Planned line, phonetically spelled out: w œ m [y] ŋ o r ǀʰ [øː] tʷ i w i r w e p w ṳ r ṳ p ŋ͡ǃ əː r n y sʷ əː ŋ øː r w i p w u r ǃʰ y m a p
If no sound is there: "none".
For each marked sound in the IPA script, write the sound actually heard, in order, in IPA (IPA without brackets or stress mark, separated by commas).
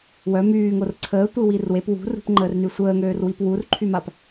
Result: yː, əː